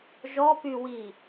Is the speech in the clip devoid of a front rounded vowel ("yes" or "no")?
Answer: no